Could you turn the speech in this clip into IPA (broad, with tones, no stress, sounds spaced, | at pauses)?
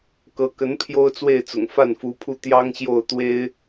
k ɤ˧˥ k ə˧˥ n pʰ j o˥ ʊ̯ t͡s w e˥˩ ɪ̯ t͡s ʊ̰˨˩ ŋ f a˥˩ n f u˧˥ pʰ u˥˩ t̪ j ɑ˥ ŋ ɕ j o˥˩ ʊ̯ t̪ w e˥ ɪ̯